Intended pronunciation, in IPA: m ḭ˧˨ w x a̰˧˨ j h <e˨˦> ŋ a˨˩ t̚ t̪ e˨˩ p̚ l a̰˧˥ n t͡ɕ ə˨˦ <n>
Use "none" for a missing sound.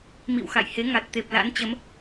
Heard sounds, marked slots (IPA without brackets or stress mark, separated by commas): e˨˦, m